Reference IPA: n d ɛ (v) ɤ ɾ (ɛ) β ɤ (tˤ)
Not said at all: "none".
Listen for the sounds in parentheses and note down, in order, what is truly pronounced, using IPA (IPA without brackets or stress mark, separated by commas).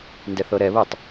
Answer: θ, ɛ, tˤ